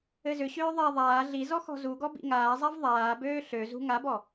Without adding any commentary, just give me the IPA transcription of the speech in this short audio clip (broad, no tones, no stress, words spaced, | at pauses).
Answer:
ɘzʏɕøː ðˤa ðˤaː ɮizɔ xɔ̤zuɡɔ bḭŋaːzˤav ðˤaːbøː ɬøzṳ ŋabɔ